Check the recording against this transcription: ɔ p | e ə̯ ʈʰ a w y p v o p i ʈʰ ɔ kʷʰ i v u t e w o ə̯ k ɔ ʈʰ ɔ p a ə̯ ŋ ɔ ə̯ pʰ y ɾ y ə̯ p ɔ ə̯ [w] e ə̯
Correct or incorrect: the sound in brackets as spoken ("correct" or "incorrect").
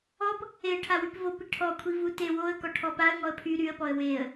correct